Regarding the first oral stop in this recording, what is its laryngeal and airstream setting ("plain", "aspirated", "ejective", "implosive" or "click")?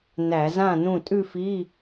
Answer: ejective